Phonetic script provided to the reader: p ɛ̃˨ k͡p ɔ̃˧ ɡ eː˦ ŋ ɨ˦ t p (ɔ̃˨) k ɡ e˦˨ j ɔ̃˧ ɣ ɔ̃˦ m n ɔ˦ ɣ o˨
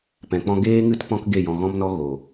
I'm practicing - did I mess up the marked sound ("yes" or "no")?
yes